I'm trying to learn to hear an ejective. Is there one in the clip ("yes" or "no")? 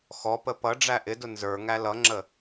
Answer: no